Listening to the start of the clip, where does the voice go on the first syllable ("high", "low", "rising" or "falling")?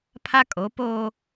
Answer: high